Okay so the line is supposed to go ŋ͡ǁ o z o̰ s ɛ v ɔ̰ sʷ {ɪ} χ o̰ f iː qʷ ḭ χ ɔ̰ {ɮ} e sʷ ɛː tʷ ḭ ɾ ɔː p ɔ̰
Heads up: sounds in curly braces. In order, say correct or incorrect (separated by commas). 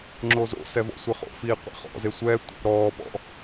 correct, incorrect